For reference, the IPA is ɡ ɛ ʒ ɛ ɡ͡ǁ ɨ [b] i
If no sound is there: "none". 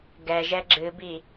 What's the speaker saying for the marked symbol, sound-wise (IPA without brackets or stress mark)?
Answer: b